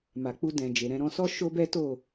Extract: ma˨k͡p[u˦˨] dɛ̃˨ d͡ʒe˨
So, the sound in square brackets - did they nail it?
no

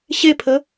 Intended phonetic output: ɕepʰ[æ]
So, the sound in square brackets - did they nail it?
no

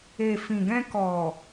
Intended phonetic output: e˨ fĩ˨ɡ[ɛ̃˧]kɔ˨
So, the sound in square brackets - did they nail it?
yes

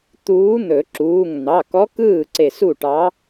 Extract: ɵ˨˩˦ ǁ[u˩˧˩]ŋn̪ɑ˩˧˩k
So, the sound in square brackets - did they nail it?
no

